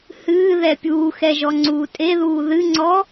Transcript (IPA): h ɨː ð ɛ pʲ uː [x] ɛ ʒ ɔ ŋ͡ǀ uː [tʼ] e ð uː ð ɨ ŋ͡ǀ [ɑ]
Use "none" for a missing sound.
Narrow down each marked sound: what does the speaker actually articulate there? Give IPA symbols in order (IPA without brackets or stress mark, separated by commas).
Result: x, tʼ, ɔ